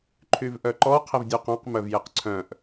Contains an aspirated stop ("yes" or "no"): yes